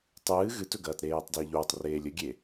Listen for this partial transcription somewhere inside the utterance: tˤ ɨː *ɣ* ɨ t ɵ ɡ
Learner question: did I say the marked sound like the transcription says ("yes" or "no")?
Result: yes